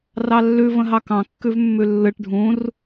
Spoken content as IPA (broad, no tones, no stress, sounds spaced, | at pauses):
r ɑ lː ʉ v ə̃ ɦ ɑ k ɑ̃ kː ʉ v mː ʉ lː ɯ ʈ ɖʱ ũ r